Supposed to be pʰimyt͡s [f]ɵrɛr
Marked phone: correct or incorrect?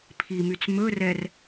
incorrect